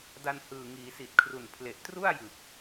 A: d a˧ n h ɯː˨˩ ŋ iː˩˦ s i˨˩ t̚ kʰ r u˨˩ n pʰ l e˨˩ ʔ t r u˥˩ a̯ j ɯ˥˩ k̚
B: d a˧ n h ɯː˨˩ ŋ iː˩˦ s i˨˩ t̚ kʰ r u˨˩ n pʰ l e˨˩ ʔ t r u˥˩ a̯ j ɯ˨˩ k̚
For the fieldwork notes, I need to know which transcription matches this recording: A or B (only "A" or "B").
B